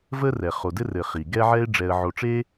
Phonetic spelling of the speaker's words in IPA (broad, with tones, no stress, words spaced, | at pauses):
və˥ rɛ˩ χo˨dɘ˥rɘ˨χi˩ ɡɛ˦ʕɛ˦ɪ̯ ɖ͡ʐɛ˨ə̯ʕo˨ʈ͡ʂe˦